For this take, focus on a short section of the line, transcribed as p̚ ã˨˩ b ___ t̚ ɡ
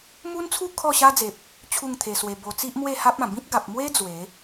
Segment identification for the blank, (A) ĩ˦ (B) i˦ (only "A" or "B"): A